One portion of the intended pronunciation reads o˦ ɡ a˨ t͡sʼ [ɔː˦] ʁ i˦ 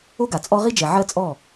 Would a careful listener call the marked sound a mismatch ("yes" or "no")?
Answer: yes